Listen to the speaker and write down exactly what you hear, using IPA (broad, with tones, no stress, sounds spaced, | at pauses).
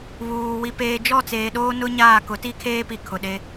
β uː˨ w i˨ p eː˨ d͡ʒ ɔ˦˨ t͡s eː˨ ɗ oː˦ n ʊ˦ ɲ aː˦˨ k ʊ˨˦ t i˦ kʰ eː˦ p i˨ kʰ ʊ˨ ɗ e˦